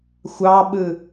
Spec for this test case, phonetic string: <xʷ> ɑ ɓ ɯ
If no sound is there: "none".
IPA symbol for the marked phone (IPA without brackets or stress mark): xʷ